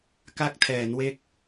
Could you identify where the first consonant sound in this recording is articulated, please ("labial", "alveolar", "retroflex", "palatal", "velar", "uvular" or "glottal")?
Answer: velar